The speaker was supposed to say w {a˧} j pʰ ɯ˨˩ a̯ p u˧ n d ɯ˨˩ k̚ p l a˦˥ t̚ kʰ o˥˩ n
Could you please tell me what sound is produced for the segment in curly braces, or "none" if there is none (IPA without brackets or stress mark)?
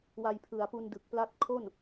a˧